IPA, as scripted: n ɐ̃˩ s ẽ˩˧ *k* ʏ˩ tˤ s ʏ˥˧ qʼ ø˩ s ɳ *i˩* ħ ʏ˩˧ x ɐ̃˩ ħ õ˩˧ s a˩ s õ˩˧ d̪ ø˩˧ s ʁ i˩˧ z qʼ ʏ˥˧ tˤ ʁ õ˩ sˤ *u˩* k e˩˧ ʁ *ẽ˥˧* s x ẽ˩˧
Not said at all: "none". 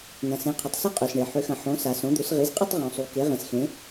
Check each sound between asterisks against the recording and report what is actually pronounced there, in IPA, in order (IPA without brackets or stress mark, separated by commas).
qʰ, e˩, u˩, ẽ˩